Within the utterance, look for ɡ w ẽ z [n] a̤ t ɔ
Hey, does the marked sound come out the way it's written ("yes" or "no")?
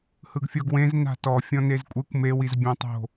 yes